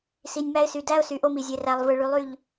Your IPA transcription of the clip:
s i˨ nʲ m æ˦ ɪ̯ s y˨ d æ˦ ʊ̯ s y˨˦ ʔ o˦ m i˨ zʲ e˨ r æ˨ lˠ v ɯ˨ ɭ y˨˦ lˠ y˦˨ ʎ

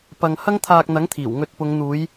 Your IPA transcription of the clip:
p ɐ˨ ŋ h ɐ˥ ŋ t̪ʰ aː˧ k̚ n̪ ɐ˨˥ ŋ t̪ʰ iː˨˩ w ŋ ɵ˧ t̚ p ʊ˨˧ ŋ n̪ uː˨˧ j

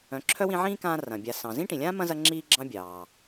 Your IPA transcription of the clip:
œ̃˨ ǁʰ œ˥ w ĩ˦ ʕ ĩː˥ k ãː˦ r ɐ̃˩ bʲ a˨ s ɑ̃˩ z ĩ˥ ʈ ĩ˩ lʲ ãː˥ m ɐ̃˥ z ɐ˦ ŋ͡ǁ iː˦ ɡ͡ǁ ɑ̃˦ bʲ ɑː˩

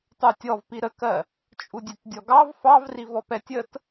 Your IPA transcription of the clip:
tˤ u tʲ ɔ v p i ɾ ə k ɜ | t͡ʃʼ u dʲ ɛ t dʲ ɔ ɡ ɑ v f ɑ v r i v ɔ p ɛ tʲ ə t

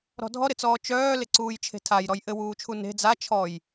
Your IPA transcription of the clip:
ɾ ɔ̤ dʱ ɔ ɾ ɪ t͡s ɔː t͡ʃ œː l ɪ ǀ uː j t͡ʃʰ e̤ tʰ a j ɾ ɔ j ʔ ɘ w uː t͡ʃʰ u n e̤ d͡z a t͡ʃʰ ɔ j

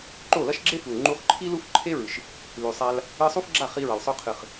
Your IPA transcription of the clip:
ǃ o˦˨ l ɐ˦ ʃ ɡ͡ǁ e˦ f u˨ l ŋ͡ǃ u˧ χ ǃʰ i˦ l u˦ f ǃʰ e˦ ɹ ɨ˨ ʃ | l ʉ˨ sˤ a˧ l | ɨ˧ sˤ u˦ f ɡ͡ǁ a˦˨ χ i˧ ɹ ɐ˨ l sˤ o˧ qʰ ɨ˨ χ

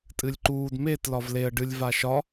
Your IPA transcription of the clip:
tʼ ɨ lʲ ǃ uː d m e t l ɒ v l e ə̯ ɖ ɨ lʲ v a ʃ ɒ

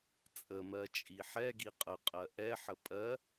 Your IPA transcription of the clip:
t͡sʼ ə m ɜ t͡ʃʼ i ħ ɛ ɡ i qʼ ə qʼ ɜ ʔ ɛ ħ ə pʼ ɜ

